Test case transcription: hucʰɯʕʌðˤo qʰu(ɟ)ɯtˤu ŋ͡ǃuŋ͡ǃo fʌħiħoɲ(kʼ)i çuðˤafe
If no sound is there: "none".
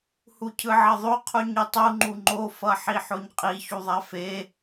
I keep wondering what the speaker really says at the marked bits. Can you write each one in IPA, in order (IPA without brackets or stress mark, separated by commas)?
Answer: ɲ, qʼ